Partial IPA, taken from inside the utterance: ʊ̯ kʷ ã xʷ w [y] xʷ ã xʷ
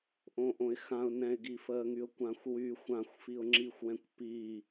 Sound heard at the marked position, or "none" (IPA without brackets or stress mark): y